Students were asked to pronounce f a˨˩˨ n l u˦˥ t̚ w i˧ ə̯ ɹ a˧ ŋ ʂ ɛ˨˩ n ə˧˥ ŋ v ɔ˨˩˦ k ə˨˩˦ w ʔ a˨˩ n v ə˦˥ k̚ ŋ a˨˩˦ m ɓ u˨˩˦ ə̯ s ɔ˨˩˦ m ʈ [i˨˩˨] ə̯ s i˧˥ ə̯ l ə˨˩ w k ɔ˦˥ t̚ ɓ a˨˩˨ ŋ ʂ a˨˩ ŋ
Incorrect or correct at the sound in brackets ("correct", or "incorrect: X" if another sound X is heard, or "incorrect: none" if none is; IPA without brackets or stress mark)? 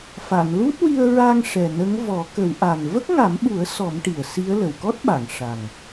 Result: correct